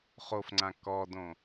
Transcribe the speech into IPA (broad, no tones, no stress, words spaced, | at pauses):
χofŋ͡ǀã kɔdõ